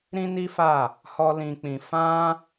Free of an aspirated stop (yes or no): yes